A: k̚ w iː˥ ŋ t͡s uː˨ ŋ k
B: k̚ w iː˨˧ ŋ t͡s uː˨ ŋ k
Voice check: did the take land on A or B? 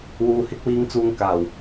B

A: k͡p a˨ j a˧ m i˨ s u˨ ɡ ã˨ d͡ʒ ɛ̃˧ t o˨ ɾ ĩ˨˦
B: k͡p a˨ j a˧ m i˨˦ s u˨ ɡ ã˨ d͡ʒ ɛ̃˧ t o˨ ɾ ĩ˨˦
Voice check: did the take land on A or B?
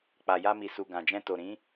A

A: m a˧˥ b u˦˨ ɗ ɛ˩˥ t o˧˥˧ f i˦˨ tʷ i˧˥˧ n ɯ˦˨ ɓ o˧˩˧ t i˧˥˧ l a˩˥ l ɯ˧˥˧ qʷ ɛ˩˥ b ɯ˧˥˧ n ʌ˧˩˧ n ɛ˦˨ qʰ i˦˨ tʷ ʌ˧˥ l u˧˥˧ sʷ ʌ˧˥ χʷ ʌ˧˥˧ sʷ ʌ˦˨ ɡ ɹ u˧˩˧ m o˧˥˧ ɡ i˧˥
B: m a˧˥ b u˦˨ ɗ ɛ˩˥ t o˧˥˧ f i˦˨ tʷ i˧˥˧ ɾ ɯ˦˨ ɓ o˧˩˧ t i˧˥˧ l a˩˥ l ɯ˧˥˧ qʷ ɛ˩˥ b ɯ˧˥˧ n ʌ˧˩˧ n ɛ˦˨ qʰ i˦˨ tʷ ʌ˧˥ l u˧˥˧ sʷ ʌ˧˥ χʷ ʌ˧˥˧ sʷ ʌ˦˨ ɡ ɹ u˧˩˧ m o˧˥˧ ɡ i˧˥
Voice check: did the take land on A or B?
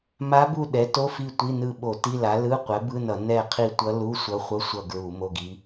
A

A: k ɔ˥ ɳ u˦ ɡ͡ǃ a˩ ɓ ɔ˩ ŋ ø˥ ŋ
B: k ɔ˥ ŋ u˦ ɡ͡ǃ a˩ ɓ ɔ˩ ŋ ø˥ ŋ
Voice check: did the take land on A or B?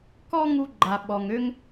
B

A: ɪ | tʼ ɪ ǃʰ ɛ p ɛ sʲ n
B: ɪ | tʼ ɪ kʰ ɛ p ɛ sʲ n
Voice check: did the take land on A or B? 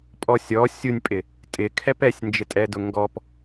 B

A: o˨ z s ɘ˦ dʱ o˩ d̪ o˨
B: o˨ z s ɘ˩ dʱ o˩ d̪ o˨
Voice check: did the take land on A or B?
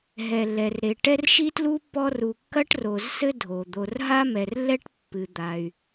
A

